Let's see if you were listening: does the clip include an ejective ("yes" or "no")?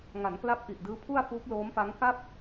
no